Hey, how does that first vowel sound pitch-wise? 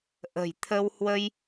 low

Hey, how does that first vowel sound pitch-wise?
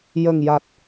low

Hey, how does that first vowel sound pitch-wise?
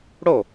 falling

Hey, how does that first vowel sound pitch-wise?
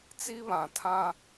high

